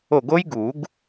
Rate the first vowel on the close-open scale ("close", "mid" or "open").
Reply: mid